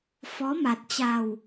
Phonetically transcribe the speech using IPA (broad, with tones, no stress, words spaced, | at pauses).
fɔ˨˦ma˨˩t̚ t͡ɕa˨˩w